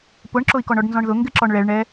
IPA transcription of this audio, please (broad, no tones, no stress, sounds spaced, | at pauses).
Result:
p ʊ ɳ ǁ ʊ i̯ k ɔ ɳ ɔ ɖ n z ɔ̃ ɳ ð ʊ ŋ ɡ ɪ ǁ ɔ ɳ ɭ ɛ ɭ ɳ ɛ